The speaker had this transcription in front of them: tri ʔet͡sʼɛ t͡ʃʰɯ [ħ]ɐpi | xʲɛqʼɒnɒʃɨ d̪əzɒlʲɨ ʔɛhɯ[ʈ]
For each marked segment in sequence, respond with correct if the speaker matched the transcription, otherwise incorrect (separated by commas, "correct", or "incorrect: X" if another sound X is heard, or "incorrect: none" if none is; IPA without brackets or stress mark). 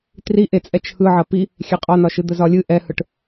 incorrect: ʕ, correct